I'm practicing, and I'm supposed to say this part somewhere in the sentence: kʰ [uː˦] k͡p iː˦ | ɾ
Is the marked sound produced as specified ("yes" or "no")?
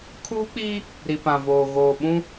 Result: yes